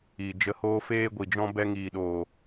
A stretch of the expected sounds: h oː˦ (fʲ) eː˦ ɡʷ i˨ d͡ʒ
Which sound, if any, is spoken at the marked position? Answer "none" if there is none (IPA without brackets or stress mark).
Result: f